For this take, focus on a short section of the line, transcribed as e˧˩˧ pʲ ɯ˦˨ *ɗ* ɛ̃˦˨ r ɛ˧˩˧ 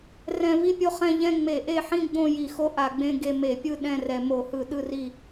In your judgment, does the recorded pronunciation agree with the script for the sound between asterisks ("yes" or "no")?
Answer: yes